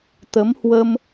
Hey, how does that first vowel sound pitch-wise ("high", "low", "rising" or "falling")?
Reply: rising